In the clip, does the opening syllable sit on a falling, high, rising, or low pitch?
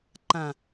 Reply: low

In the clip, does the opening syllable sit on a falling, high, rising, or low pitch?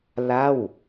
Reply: falling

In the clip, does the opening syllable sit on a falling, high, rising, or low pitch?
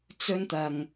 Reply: high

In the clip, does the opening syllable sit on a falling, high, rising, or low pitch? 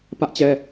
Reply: high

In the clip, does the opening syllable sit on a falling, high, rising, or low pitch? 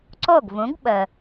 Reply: falling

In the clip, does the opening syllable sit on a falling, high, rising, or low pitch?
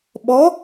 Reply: rising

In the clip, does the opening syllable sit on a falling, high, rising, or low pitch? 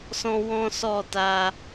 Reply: high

